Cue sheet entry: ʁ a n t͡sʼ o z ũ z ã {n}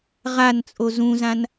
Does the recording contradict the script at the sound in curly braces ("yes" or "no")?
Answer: no